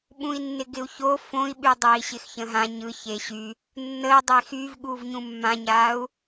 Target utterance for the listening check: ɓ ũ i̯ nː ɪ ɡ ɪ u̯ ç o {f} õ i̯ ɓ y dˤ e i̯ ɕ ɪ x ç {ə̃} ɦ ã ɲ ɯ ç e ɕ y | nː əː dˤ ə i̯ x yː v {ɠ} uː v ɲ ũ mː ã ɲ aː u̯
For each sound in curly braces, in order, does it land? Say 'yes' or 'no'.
yes, yes, yes

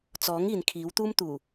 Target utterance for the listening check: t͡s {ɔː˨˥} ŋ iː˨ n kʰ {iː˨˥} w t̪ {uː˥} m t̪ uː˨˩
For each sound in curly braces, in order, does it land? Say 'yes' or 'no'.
yes, yes, yes

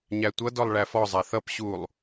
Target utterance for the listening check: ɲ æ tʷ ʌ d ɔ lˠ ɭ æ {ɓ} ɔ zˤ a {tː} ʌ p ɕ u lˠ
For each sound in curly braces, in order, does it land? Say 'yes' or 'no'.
no, no

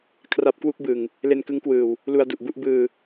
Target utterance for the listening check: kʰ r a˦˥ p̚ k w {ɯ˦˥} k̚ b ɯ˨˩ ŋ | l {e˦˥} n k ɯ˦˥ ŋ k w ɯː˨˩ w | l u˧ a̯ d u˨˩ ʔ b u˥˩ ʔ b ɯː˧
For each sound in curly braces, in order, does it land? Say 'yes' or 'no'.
no, no

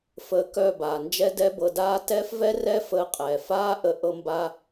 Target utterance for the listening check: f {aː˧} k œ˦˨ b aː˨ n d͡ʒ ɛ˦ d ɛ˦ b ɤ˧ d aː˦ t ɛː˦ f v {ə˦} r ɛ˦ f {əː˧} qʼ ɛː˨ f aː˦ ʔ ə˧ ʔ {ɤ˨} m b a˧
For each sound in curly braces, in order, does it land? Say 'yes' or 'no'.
no, no, yes, no

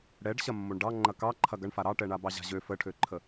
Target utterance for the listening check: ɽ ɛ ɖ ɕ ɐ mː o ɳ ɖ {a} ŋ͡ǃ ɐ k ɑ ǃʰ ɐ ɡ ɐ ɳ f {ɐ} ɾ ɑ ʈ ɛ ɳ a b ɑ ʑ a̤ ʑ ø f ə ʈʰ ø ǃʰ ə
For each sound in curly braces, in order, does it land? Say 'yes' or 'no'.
no, no

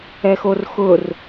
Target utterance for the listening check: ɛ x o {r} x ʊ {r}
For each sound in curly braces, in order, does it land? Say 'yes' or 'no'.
yes, yes

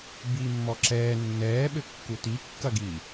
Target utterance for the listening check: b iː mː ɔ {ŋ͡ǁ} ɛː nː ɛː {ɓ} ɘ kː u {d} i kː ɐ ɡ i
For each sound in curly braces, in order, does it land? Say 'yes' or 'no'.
no, yes, no

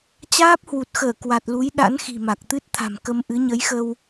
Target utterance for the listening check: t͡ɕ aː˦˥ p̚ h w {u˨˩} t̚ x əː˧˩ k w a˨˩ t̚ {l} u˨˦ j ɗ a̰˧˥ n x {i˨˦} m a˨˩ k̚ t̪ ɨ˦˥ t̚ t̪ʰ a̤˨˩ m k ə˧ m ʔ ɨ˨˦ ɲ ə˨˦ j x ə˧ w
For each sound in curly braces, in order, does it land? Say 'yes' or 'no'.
yes, yes, no

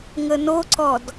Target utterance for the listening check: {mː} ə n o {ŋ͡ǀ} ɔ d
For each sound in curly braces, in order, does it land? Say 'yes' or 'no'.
no, no

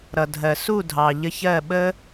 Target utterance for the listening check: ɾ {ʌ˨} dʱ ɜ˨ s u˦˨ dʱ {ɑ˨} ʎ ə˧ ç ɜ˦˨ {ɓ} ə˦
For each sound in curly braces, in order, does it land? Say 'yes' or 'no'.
yes, yes, yes

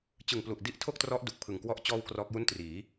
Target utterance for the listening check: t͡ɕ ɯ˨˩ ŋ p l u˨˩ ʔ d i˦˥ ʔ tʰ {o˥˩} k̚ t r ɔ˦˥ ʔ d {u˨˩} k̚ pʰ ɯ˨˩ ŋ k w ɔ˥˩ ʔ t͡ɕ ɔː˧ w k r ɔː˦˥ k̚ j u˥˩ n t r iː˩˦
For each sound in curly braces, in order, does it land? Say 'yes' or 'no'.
yes, yes

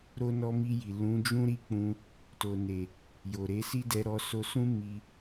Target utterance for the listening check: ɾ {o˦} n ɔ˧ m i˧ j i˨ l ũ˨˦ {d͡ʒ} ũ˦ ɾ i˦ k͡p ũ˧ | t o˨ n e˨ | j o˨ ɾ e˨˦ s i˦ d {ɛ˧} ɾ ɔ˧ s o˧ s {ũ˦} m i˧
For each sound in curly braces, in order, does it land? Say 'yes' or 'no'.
no, yes, yes, yes

